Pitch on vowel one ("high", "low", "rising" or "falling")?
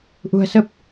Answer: low